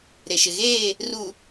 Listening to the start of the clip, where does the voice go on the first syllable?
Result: low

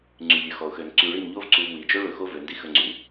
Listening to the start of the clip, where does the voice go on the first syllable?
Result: low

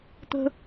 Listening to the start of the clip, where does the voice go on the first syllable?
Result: high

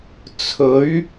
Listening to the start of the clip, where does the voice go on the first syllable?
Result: rising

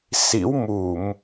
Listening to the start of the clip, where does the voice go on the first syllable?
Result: rising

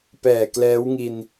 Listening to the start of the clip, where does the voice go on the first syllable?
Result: low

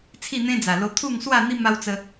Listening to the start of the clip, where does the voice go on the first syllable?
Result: falling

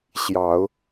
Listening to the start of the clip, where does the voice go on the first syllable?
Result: low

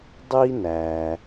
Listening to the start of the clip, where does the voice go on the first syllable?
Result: high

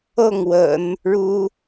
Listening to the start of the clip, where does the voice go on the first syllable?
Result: falling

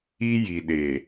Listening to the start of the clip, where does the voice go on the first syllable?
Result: high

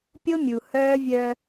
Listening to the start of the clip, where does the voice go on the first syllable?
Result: high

